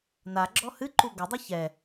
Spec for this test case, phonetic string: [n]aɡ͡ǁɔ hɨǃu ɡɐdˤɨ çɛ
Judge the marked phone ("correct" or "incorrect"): correct